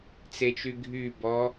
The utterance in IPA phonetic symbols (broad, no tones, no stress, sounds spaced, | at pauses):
t͡s e t͡ʃ y ɡʱ y b ɔ